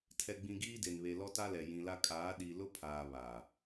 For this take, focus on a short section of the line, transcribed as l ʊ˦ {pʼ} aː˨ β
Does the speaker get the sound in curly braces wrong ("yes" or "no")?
yes